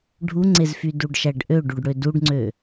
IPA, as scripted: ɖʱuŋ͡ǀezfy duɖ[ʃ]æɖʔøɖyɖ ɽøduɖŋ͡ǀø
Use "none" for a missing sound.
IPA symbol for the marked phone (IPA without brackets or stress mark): ʃ